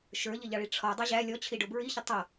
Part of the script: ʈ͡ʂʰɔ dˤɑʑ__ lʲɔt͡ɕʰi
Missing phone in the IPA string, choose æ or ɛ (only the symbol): æ